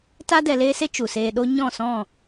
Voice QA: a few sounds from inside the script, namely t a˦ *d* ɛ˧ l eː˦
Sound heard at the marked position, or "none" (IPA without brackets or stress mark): d